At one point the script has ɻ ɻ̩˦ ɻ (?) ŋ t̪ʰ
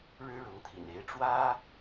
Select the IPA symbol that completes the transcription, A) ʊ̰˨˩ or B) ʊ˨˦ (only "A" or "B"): B